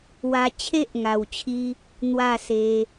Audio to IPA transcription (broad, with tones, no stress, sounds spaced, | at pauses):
w a˧ t͡ɕʰ e˦ ʔ ŋ a˨˩ w t͡ɕʰ i˧ | n̪ w a˥˧ s e˧